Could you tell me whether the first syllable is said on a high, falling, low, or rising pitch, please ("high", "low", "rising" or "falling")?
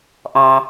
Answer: low